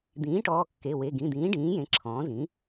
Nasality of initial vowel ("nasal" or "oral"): nasal